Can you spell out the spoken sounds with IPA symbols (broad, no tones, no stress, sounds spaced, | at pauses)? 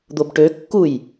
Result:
d̪ o b ʈ ø kː u j